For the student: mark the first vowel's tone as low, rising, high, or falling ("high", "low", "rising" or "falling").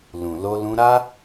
low